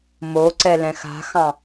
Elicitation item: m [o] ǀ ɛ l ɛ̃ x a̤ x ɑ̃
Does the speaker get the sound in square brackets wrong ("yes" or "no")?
no